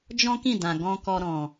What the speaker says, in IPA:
d͡ʒ ɔ̃˦ k ĩ˦˨ d ã˨ ɡ ɔ̃˧ k ɔ˧ ɾ ɔ̃˨

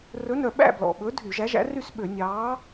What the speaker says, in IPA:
r ɵ˨˥ n œ˨˩ ɓ æ̰˥˨ b l ɔ̰˨˩ ɓ ɵ˨˥ dʱ y˧˩˧ ʒ æ˨˥ ʒ æ̰˨˥ r y˥˨ s ɓ ø˧˩˧ nʲ ɑː˨˥

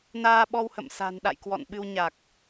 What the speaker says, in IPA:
n aː˧ ɓ ɔ˧ w h ə̰˧˨ m s a̤˨˩ n ɗ a̰˧˨ j k w ɔ̰˧˨ n ɓ ɨ˧ w ɲ a˨˩ k̚

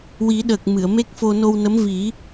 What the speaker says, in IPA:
w i˨˩˦ ɗ əː˨˩ k̚ m ɨ˨˩˨ ə̯ m e˦˥ k̚ f o˧ n o˧ w n ə˧˥ m v i˨˩˦

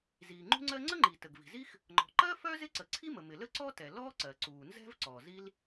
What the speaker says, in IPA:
z iː˩ ŋ͡ǃ ṳ˥ ŋ͡ǀ ɜ˥ ŋ͡ǀ ə˥ ŋ͡ǃ i˩ t ə˩ ɡ v i̤˩ z i˥ x | ŋ͡ǃ ɔ̤˩ ǃ ɜ˥ f œ˥ z ɪ˥ ǀ ə˩ ǀʰ i˥ m ə˩ m ɪ˩ l ə˥ ǀ ɔ˥ t ɛ˩ l ɔː˥ ǀ ɜ˩ ǀ uː˩ n z ɛ̤˥ v ǀ ɔː˩ z i˥ l

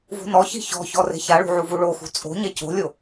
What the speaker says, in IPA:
v ṳ n ɔ ç i̤ ç ɔ̤ ç ɔ r e̤ ç a ɭ ṳ ʕ u v u ɭ o x ṳ t͡sʼ o̤ ɲ ɛ c o̤ lʲ o

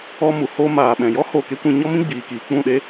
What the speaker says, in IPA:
ɔ˧ m u˨ h o˧ m aː˨ ɓ ɛ̃˨ j ɔ˦ h o˦˨ k e˦ kʷ ĩ˧ ɲ ɔ˦ m ĩ˦ ɡ͡b iː˨ k iː˨ k͡p ũ˦˨ ɗ e˦

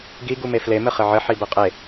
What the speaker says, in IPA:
ɡ i ɡ u m e f l e m ɘ χ ɘ ʕ ɘ ħ i b ɘ qʼ e

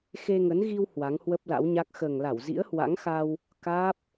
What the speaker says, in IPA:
x e˧ ŋ ə˨˦ n ɣ i˧ w h w a˨˦ ŋ h w ə˦˥ p̚ l a̰˧˥ w ɲ a˦˥ k̚ x əː˨˩ ŋ l a˧˩ w z ḭ˧˥ ə̯ h w a̰˧˥ ŋ x a˧ w | k aː˦˥ p̚

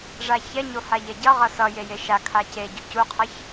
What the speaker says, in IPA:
ʐ a ç ɛ ɲ o h a ʎ ɛ ɟ ʌ ʁ ʌ s ʌ j e j e ʃ a kʰ a c e ɟ u c u qʰ ʌ ç

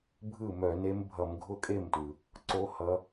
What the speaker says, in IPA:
bʱ ɯ˥˩ m œ˧˩˧ n e˧˥ m bʱ ʌ˧˩˧ m ɡʱ ʊ˥˩ kʼ e˥˩ m t w ɯ˩ | ǀ o˧˥ h ʌ˧˥

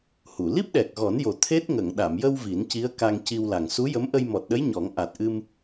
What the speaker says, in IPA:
h u˨˩˨ l i˦˥ p̚ ɗ ɛ˨˩ k̚ ɣ ɔ˨˩˦ n j o˨˩ t̪ʰ e˦˥ t̚ ŋ ə˨˩˨ ŋ ɗ a˨˩˨ m j ə˧ w v i˨˩˦ n c i˧˥ ə̯ k a˧ ŋ c i˧ w l a˨˩ ŋ s u˧˥ j ə˧˥ m ʔ ə˧ j m ɔ˨˩ t̚ ɗ ə˧˥ j ɲ ɔ˨˩˦ ŋ ʔ a˨˩ t̚ ʔ ɨ˧ m

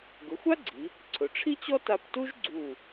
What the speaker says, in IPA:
ɡ ʊ˩˧ xʷ a˥ ɡ͡ǀ i˩˧ | ǀʰ ʊ˩˧ ʈ͡ʂʰ i˥ t͡ɕ ɔ˥ t a˧ p t u˥ ʒ ɡ͡ǀ u˧˩

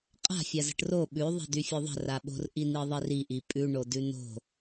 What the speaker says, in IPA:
qʼ a̤ fʲ a z ə̤ ʈ r o ɓ ʉ ðˤ i̤ d y fʲ o ðˤ ə̤ r a ɓ o̤ r ʔ i n i ðˤ i r i ʔ i pʼ ʉ ɳ o d ʉ n o̤

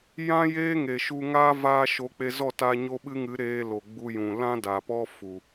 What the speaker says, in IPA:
j ã˦ j eː˦ ŋ e˨ ʃ u˧ ŋ aː˦ v aː˦ ʃ o˨˦ k͡p e˧ z ɔ˦˨ t a˧ ɲ o˦ ɓ ɨ˦ ŋ ɨ˨˦ ɾ eː˧ l o˨ ɡ͡b u˧ j ũ˨ l ã˦ d a˨ p ɔ˦ f u˨

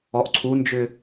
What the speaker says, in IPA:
ɔ ʔ ǀʰ u n d͡ʒ ʏ

